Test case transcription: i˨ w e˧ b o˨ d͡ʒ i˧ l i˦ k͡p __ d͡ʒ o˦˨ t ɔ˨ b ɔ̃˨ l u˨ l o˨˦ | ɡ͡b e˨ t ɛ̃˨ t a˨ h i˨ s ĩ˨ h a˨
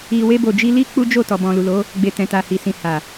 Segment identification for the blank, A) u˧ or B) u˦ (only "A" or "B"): B